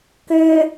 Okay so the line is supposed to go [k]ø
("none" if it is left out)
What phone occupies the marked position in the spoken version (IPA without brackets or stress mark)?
k